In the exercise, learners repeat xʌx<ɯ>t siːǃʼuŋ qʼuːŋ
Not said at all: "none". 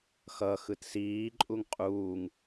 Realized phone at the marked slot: ɯ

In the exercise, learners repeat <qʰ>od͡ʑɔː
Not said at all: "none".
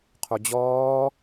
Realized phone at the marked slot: qʰ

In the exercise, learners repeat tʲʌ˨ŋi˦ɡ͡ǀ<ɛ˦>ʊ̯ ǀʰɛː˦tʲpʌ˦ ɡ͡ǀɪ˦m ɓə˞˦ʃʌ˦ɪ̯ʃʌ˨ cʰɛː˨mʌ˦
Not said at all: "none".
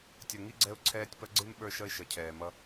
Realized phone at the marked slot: ɛ˦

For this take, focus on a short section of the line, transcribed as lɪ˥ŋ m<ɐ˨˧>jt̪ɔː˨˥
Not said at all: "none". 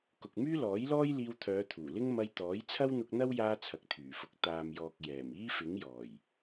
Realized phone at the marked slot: ɐ˧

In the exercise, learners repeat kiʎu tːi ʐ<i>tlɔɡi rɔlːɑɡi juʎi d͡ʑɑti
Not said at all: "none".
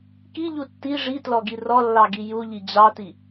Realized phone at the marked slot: i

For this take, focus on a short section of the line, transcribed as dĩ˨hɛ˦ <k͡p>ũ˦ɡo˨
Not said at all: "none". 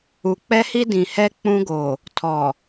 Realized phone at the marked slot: k͡p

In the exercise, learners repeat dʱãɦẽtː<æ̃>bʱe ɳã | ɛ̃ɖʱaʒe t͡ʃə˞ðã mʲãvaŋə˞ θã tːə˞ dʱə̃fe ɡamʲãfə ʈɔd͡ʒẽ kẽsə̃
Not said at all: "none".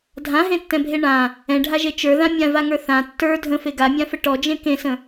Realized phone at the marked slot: ɛ̃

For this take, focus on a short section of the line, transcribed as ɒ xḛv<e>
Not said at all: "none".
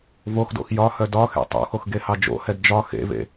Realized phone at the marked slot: ḛ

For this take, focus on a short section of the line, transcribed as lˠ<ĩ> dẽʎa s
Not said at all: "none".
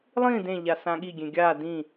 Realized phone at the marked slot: ĩ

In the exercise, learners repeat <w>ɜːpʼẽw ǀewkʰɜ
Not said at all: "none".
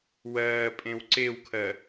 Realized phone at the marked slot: w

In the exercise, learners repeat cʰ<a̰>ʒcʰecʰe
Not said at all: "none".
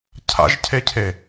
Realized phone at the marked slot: a̰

